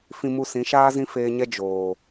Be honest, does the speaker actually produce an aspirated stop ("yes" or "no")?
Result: no